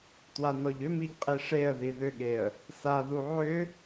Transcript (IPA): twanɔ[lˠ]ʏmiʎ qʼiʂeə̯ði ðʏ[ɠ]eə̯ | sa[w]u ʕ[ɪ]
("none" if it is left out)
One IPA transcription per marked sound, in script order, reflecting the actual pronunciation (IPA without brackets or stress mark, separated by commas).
ʎ, ɠ, ð, ʏ